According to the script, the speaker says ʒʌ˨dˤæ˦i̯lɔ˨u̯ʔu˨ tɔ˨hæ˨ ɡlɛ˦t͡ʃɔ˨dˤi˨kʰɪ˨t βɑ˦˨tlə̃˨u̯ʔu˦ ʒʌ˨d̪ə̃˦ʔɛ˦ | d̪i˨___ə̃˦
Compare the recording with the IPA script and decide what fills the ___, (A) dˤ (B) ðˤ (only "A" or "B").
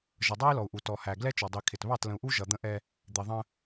B